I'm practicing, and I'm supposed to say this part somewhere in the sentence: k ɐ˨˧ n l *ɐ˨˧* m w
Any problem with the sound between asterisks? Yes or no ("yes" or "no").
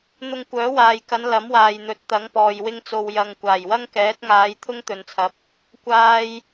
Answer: yes